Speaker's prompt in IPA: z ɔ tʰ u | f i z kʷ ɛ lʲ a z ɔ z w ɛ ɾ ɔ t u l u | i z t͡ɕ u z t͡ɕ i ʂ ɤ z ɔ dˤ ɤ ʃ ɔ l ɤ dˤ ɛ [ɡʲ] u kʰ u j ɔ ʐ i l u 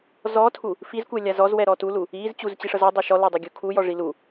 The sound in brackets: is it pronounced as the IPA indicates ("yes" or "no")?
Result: yes